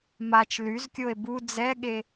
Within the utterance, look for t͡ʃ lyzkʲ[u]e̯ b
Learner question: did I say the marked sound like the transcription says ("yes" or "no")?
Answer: no